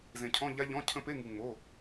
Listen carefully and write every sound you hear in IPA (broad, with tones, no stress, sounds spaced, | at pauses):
z ẽ˧ cʰ ɔ̃˧˥˧ ʎ a˦˥ ʎ ɔ̃˧˥˧ cʰ ə̃˦˥ p e˧˥˧ ŋ ɯ˧ ŋ͡m o˧˥˧